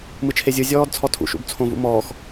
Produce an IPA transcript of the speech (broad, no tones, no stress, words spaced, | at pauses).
mɯt͡ʃʰezʲɯ zʲɔːdt͡sʰɔtʰṵ ʃṵbt͡sʰõvṵmɔːx